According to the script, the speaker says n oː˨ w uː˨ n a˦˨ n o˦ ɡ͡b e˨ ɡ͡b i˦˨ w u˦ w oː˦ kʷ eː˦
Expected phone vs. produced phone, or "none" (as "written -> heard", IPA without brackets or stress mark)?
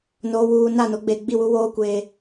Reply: none